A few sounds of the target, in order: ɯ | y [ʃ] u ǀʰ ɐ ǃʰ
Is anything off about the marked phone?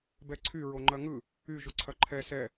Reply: yes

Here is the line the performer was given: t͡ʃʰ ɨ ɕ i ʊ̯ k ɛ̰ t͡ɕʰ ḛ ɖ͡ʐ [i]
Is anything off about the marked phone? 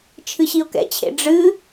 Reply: yes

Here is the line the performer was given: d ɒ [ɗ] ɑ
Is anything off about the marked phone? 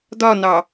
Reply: yes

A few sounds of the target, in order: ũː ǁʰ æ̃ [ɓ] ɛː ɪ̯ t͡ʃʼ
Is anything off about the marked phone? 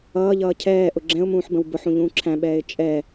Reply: no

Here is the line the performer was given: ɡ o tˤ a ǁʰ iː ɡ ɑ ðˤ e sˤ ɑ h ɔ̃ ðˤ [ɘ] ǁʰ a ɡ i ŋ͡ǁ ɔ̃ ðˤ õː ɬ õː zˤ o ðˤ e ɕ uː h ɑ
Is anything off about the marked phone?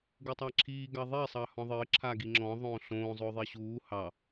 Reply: yes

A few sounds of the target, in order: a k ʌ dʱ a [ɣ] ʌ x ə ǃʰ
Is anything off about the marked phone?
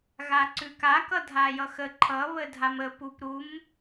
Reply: yes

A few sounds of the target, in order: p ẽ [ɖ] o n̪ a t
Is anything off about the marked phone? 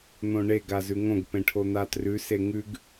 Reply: yes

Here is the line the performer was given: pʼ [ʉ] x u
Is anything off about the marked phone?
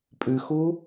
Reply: no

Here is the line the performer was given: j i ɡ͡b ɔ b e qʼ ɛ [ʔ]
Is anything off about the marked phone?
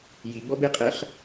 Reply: yes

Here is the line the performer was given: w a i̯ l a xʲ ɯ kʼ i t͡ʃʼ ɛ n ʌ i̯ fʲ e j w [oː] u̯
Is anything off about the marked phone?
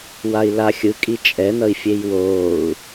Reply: no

